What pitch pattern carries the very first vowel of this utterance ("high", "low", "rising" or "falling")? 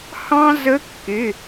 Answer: high